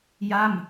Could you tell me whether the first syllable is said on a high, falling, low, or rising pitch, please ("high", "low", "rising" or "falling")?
falling